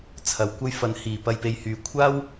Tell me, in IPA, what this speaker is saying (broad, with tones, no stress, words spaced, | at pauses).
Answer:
t͡sʰɐ˨˩wkʷɐ˥j fɐ˨˥nhiː˨˩ pɐ˧jpe˨˧jhyː˨˩ kʷʰaː˥w